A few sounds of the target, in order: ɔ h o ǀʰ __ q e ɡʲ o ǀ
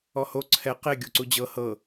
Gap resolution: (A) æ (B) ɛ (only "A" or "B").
B